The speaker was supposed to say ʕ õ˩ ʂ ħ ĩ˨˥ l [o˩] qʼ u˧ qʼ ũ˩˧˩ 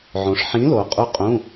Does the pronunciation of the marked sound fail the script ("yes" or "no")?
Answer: no